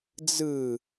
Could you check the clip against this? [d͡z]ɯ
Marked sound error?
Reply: no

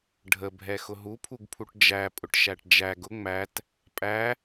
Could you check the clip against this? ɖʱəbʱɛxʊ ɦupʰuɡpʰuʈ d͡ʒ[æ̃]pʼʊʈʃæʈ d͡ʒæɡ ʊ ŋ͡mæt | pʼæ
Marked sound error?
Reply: yes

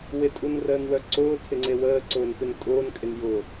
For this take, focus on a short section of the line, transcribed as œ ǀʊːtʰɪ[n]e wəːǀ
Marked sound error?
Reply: yes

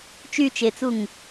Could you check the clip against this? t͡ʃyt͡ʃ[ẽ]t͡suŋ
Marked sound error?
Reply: yes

